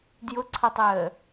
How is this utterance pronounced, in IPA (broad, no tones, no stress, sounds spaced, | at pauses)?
d j ʊ ǀʰ ʌ tˤ əː